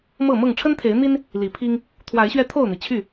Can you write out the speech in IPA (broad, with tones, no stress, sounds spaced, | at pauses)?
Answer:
m ɤ˥˨ m ɤ˥˨ ŋ ʈ͡ʂʰ ə˦ n t̪ʰ e˨˦ ɪ̯ n̪ i˦ n | l i˨˦ pʰ i˦ ŋ | t̪ʰ w a˨˦ ɪ̯ ɕ ɥ ɛ˧ t̪ʰ o˥˨ ʊ̯ n̪ i˩ t͡ɕʰ y˥˨